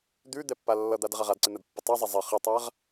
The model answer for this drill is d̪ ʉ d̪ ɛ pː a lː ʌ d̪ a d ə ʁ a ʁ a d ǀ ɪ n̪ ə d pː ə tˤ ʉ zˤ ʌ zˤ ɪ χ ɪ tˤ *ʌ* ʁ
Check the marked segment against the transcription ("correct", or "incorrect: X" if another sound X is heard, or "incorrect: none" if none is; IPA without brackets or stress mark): incorrect: a